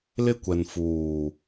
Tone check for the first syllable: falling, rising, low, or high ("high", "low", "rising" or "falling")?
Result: high